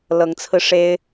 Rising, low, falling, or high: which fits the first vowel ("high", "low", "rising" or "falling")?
rising